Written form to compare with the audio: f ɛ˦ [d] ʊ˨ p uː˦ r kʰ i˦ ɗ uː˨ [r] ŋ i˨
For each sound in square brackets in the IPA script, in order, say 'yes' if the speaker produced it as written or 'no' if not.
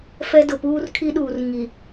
yes, yes

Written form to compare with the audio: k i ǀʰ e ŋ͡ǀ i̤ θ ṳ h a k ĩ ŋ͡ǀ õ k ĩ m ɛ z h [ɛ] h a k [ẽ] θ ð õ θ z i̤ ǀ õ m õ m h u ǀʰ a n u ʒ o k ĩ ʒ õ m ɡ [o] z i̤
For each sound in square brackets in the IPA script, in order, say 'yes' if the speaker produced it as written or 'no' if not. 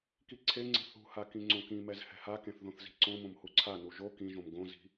no, yes, no

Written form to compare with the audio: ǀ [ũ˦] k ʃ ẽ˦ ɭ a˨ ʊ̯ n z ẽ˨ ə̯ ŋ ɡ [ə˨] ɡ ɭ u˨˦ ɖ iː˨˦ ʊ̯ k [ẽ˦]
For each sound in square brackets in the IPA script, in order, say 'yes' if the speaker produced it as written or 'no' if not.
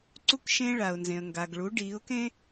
no, no, yes

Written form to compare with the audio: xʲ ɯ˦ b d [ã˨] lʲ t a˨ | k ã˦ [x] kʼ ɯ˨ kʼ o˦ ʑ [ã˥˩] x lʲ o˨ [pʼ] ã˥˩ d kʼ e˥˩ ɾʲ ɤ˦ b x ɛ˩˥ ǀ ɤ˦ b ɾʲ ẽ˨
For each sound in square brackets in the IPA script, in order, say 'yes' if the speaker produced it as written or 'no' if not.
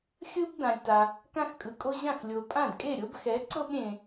yes, yes, yes, yes

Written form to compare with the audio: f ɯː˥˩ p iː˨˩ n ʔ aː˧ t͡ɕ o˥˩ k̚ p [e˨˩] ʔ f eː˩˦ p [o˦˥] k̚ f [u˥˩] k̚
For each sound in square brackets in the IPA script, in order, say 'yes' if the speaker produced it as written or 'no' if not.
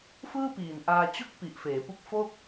no, no, no

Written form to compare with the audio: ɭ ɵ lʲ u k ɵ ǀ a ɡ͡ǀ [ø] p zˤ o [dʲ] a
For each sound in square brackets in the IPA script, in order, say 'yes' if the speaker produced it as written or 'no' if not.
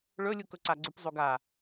no, no

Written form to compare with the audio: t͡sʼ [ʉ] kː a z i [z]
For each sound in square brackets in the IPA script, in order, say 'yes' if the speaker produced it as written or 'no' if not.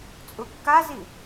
no, no

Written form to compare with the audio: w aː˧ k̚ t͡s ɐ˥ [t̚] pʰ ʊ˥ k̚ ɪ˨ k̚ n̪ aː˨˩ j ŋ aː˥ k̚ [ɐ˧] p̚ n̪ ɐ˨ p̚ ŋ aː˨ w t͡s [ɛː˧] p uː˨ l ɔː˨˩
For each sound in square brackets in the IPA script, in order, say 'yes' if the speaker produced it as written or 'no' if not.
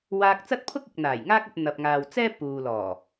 yes, yes, no

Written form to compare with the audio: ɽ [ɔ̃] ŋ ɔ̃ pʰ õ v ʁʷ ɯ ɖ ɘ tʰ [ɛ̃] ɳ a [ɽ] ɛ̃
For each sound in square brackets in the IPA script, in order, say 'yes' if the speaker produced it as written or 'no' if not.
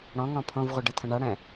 yes, no, yes

